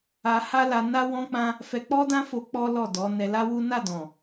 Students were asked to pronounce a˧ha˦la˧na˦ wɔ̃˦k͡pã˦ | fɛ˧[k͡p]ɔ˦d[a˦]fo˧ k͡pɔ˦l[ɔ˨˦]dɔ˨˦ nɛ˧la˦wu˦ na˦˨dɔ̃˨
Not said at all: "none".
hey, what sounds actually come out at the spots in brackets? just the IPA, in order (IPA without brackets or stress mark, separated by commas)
k͡p, ã˦, ɔ˦˨